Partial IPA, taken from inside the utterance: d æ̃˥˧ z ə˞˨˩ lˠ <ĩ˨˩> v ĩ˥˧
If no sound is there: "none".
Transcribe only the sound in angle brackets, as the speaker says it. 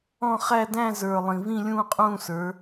ĩ˨˩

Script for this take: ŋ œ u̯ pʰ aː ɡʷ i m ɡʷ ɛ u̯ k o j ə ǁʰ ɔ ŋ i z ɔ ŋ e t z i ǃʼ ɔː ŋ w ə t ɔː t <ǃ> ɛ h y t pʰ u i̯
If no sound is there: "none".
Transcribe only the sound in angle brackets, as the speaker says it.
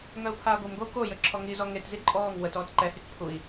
ǃ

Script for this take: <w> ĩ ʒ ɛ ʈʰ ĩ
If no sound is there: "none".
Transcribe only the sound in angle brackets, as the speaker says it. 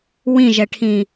w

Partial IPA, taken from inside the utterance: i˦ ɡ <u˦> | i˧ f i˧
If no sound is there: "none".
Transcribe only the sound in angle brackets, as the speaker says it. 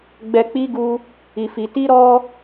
u˦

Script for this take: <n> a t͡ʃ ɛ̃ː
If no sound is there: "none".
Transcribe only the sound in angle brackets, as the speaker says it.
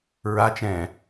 ɹ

